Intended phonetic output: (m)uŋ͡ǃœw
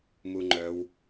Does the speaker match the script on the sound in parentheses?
yes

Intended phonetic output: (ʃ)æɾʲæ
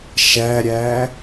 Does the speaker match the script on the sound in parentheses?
yes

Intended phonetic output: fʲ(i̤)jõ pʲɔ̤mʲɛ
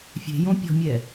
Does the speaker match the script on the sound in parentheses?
no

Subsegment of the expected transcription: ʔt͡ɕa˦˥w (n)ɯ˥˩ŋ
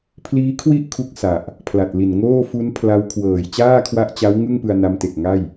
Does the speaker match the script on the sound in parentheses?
no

